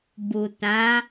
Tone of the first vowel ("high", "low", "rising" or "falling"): low